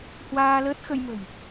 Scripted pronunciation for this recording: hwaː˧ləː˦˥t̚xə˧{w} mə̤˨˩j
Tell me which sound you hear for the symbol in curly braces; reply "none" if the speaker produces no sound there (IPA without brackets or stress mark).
j